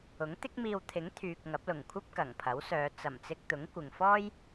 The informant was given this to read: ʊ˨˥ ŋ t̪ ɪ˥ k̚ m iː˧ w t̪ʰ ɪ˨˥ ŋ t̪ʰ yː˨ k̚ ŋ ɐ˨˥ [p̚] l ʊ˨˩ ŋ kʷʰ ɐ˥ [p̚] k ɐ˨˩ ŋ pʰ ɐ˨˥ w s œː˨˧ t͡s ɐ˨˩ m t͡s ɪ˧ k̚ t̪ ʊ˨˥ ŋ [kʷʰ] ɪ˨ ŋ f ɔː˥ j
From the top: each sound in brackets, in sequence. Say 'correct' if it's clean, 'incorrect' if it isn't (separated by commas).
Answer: correct, correct, incorrect